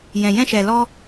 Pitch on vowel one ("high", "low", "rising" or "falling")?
low